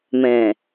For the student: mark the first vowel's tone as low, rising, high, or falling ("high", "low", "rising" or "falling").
low